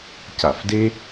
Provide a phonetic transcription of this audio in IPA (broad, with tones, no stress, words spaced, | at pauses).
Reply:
ca˧˩˧fde˥